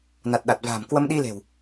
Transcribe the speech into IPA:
na˨˩t̚ɗa˨˩t̚va̤ː˨˩m kwə˧mɗi˧le̤˨˩w

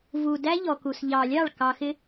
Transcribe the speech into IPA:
vu˨ dæ˦ʎɔ˨ku˨s ʎɑ˨lʲɑ˦˨ɭ kɑ˨xɪ˦

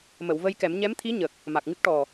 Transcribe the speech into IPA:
mə˨˩˨wvə˧jkɛ˨˩˦m ɲɛ˧˥mt̪ʰi˧˥ ɲə˨˩k̚ | ma˨˩k̚ŋɨ˦˥k̚ʈɔ˨˩

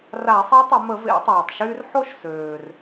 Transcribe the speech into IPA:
ra˧˩˧sˤɛ˧˥tˤə˧˩˧ mə˧˩˧vḛ˧˩˧tˤeː˩tˤ ʃyː˧rħo˥˨ʃ søː˩r

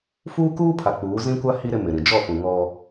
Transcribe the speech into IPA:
fuː˦kuː˦pʰa˨ k͡puː˨˦ zĩ˦kʷa˦ hi˦ ɾɪ˦mɪ˨ɾĩ˨ d͡ʒɔ˦˨fũ˨ ŋɔ˦

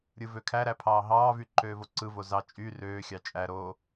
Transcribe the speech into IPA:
ɾʲɯvøkʰæɾæ pʰɑːɦɑːvy ǃøːvoǀɯvo zɑ t͡ʃʼy røːxʲɑ t͡ʃʼæɾoː

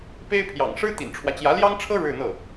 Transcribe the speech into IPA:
pe˥ɪ̯pʰjɑ̰˨˩ŋ ʂɻ̩˥t̪ḭ˨˩nʈ͡ʂʰwä˦t͡ɕjä˧˥ ljɑ˥ŋʈ͡ʂʰɤ˥ ɻɻ̩˥˧n̪ɤ˥˩

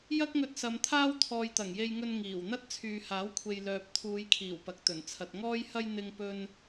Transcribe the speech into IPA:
jɐ˥k̚ŋɵ˧t̚ sɐ˨˧mt̪ʰaː˥w t̪ʰɔː˨jt̪ɐ˨˩ŋje˧jŋɵ˧n ŋiː˨˩wn̪ɐ˥t̚ t͡sʰyː˨haː˨˥wkʷʰe˨j lœː˨p̚t̪ʰuː˨˧jkʰiː˨˩w pɐ˨k̚t̪ɵ˨˩n t͡sʰɐ˨t̚ŋɔː˥jhɐ˥j n̪ɪ˥ŋ pɵ˥n

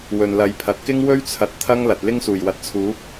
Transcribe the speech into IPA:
wɵ˨nlɐ˨˧jpʰɐ˨t̚ kɪ˥ŋwɵ˥ɥt͡sʰɐ˨t̚ t̪ʰɐ˥ŋlɐ˨t̚ lɪ˥ŋsuː˨˩jwɐ˨t̚t͡sʰuː˨˥p̚

